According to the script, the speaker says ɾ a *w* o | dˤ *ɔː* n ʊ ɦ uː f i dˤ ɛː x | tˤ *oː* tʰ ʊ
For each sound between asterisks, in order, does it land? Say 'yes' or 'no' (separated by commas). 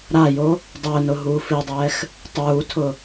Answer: no, no, no